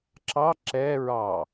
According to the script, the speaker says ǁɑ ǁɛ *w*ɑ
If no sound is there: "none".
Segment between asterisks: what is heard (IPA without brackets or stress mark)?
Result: ɹ